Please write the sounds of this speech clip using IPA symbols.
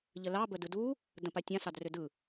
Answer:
ʎəlɑ bədɯdu | də̃patʲã sɑdrʏdɯ

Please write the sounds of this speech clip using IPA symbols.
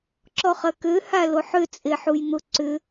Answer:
ǁɔχɐkø haloħʏ t͡sʼeħujn̪ʊ ǀʏ

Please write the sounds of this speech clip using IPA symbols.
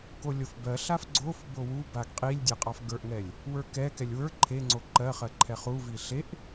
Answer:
kolʲofbɜɬaf ɡ͡ǀof bowubaɡ qʼilʲ dʲeqʼɑfɡə˞ʔŋɛlʲ | wə˞kɛkɛlʲ wə˞ ǃʰeŋ͡ǀo ǃɜχɜ ǃʰɛχuvi ɬeʔ

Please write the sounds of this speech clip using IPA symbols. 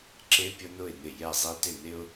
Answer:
ǁe˦pʲʊ˦nʊ˦˨ɪ̯nɪ˦˨ jɛ˦˨zˤi˦tɪ˦˨nɪ˦ʊ̯

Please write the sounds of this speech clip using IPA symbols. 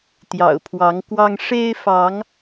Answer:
t̪jɑ̰˨˩ʊ̯pʰwɑ˨˦ŋkwɑ˦ŋ ʂe˦ɪ̯fɑ˨˦ŋ

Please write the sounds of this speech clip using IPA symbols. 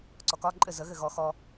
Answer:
ǀɔkɒ ǃʼɘ zə ɣɘɣɔ xɔ

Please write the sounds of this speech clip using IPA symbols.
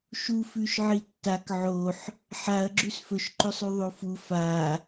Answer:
ʃu fʉʃʕitːak ʕoħ | ħaɐ̯ ɡ͡ǁʉsfɵʃ ǃɵsˤʉðˤofu fa

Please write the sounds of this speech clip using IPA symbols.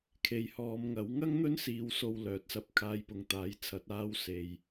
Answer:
kʰe˨jhɔː˨˧mŋɐ˨˥w ŋɐ˥ŋn̪ɵ˥n siː˧wso˧wlœː˨˥t̚sɐ˧p̚ kʰaː˧jpʊ˨ŋt̪aː˨˥jt͡sʰɐ˨˥t̚ aː˧wse˨j

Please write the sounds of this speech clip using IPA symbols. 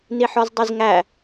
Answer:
niħɔzdˤizŋæ

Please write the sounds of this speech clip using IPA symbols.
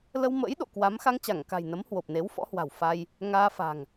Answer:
lə˧wmə̰ː˧˥j ɗo̰˧˨kwa˨˦m xa˧ŋt͡ɕa˧˩ŋka̤˨˩j nə˨˦mhwo˨˩p̚ne˨˦w fɔ̰˧˥hwa̤˨˩w fa˧j | ŋaː˧fa̤˨˩ŋ

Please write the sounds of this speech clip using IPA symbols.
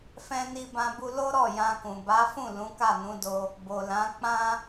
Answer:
fɛ̃˧ni˧bã˧bu˧ lo˦ɾɔ˦˨ jã˧kũ˨ ba˨˦fũ˦˨ lũ˨˦ka˦˨nũ˨˦do˧ | bo˨lã˨˦ k͡pã˦

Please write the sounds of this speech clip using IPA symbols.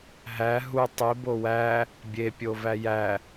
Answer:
ɦæ ɦu tˤibo wæ | bʲepʲovæ jæ

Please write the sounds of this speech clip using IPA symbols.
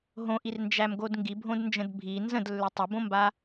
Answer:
ɦõʔirnd͡ʒæmɡod ŋɡibʱõdnd͡ʒə̃d bʱi nzə̃dlːʏ tˤʊbõmba

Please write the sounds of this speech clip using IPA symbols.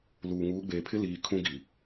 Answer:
luː˨ŋuː˨˦ɡ͡beː˨pʰɪ˦ liː˨ kʰũ˦ɡi˨

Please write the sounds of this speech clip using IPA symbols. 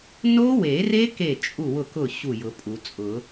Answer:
no˦˥we˨˩˦re˦˥ ke˥˩t͡ʃʼu˥˩wʊ˥˩kʊ˥˩ ɕu˥˩jʊ˨˩˦pʼu˨˩˦ t͡sʼʊ˨˩˦

